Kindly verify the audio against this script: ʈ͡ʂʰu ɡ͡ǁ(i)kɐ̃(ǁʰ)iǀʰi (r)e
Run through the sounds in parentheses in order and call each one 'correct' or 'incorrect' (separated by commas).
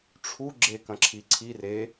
incorrect, correct, correct